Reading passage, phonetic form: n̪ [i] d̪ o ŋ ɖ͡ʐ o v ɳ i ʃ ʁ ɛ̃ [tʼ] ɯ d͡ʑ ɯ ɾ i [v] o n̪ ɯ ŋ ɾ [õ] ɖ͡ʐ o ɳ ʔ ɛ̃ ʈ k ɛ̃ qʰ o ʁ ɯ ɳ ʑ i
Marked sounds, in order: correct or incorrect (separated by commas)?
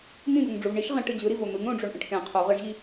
incorrect, incorrect, correct, correct